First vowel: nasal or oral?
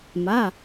oral